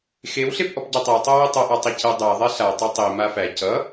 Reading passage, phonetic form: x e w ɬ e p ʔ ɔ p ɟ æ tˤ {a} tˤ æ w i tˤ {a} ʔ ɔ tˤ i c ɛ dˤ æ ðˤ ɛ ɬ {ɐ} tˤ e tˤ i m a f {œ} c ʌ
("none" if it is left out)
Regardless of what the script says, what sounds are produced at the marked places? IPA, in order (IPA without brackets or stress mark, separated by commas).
a, ʌ, a, æ